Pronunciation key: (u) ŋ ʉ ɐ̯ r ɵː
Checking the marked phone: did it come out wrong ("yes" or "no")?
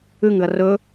yes